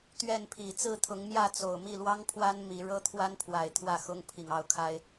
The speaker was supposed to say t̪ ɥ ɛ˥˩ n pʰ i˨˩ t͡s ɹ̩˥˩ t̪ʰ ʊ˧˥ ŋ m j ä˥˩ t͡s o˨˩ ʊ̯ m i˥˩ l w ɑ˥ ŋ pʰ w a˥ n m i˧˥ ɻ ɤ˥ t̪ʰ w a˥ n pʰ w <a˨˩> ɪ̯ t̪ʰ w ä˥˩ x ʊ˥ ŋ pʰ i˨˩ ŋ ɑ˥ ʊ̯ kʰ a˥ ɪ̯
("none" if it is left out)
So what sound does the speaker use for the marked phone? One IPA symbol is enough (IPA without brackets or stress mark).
a˨˩